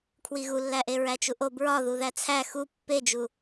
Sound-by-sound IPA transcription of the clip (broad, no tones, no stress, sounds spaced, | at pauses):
kʰ w i ɣ u lː æ ʔ e ɹ æ t͡ʃ u ʔ o b ɹ ɒ ð u ð æ t͡sʰ æ x u pː e d͡ʒ u